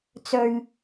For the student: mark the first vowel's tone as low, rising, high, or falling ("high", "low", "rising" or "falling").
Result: low